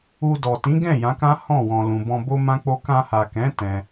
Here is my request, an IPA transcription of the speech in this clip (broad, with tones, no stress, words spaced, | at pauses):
u˧dɔ˨ tĩ˨˦ɡɛ̃˦˨ jã˨˦kã˦hɔ̃˦˨ wɔ̃˨lũ˨ bɔ̃˧bo˦mã˦k͡po˦ kã˧ha˨kɛ̃˨˦ tɛ̃˧